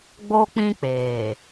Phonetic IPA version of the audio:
ɡ͡b o˦ k͡p ĩ˦ k͡p eː˨

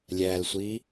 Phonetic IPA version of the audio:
lʲ æ l sʷ i

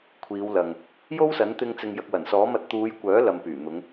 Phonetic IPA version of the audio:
kʷʰ iː˨˧ w l ɐ˨ ŋ | j o˥ w s ɐ˨˥ n t̪ ɪ˧ ŋ t͡s ɪ˨ ŋ j ɐ˨ k̚ w ɐ˨˩ n s ɔː˨˥ m ɐ˧ t̚ t̪ uː˨˧ j kʷ œː˨˥ l ɐ˨ m p yː˨˩ n̪ ʊ˨˧ ŋ

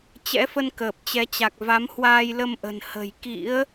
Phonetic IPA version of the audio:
t͡ɕ ɛ̰˧˥ f ə˧ n k əː˨˩ p̚ t͡ɕ ɛ˨˦ t͡ɕ a˨˩ k̚ v a˨˦ m h w aː˧ j l ə˧ m ʔ ə̤˨˩ n h ə̤˨˩ j k ḭ˧˥ ə̯

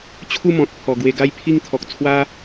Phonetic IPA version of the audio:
t͡ɕʰ u˥˧ m ɔ̃˨ t̚ pʰ ɔ˨˩ ɡ w e˧ ɡ a˥˧ j pʰ i˥˧ ŋ t̪ʰ ɔ˨ k̚ t͡sʰ w a˦

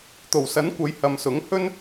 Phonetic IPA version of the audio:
t̪ o˨˩ w s ɐ˨˥ n kʷ ɐ˨˧ j h ɐ˨ m s ʊ˨˥ ŋ h ɵ˧ n

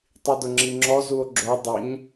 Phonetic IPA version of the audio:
tˤ i d ʊ ŋ͡ǁ i ŋ͡ǁ ɔ z u o̯ ɡ͡ǁ o dˤ ɪ ɲ

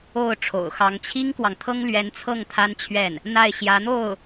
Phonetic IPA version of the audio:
o˥˩ ʊ̯ ʈ͡ʂʰ o̰˨˩ ʊ̯ x ɑ˧˥ ŋ t͡ɕʰ i˥ ŋ k w ɑ˨ ŋ t̪ʰ ɤ˥ ŋ l ɥ ɛ˧˥ n t͡sʰ ɤ˥˩ ŋ t̪ʰ a˥ n t͡ɕʰ ɥ ɛ˥˩ n | n̪ a˥˩ ɪ̯ ɕ j ä˧˥ n̪ o˥˩ ʊ̯

